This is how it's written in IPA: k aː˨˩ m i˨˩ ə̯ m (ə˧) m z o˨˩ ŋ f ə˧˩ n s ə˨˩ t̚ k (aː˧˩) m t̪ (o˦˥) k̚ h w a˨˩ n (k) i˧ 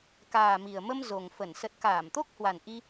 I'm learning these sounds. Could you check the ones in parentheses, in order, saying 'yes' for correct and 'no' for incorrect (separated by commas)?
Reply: yes, yes, yes, no